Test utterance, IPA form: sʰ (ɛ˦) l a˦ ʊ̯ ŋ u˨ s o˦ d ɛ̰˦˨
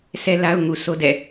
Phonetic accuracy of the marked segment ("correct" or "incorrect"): correct